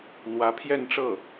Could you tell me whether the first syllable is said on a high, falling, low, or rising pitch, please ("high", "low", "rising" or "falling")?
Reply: rising